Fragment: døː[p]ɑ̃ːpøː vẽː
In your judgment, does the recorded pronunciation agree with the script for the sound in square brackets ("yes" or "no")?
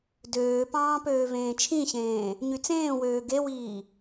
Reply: yes